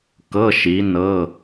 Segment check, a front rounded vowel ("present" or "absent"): absent